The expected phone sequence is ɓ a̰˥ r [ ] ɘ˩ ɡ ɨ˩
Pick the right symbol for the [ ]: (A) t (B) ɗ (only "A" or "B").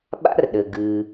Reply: B